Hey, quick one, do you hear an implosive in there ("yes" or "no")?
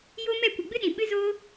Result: yes